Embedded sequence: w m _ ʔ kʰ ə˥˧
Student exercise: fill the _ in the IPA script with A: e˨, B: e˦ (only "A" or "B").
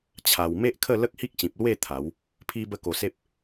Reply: B